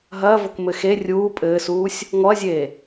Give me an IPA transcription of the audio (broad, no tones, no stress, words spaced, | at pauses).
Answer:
ɦɐːvok mɘxe rʲuː pʼɘːsuːsʲ | ŋɔɐ̯zʲeː